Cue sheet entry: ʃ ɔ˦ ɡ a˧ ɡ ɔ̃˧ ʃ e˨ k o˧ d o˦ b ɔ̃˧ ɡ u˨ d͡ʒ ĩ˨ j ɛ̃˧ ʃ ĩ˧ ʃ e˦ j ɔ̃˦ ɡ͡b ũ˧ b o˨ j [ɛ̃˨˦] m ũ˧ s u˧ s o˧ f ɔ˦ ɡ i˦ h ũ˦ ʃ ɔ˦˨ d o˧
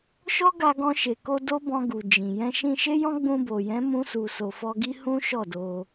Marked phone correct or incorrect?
correct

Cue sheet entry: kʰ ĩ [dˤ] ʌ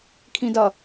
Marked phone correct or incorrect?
incorrect: d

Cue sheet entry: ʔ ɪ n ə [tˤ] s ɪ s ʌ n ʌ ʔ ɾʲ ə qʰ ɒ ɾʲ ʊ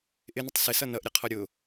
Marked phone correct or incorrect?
correct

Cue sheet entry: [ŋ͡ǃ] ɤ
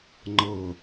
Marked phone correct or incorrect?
correct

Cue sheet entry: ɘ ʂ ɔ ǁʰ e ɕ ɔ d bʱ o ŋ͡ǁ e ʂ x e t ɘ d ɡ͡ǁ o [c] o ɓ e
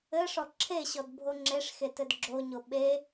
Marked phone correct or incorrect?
incorrect: ɲ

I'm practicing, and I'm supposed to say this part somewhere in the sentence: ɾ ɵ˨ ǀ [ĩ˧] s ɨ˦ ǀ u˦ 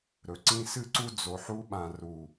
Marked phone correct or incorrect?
correct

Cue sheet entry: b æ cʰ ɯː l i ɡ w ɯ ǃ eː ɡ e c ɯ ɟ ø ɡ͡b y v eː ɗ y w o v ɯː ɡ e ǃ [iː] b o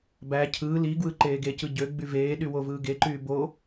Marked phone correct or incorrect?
incorrect: yː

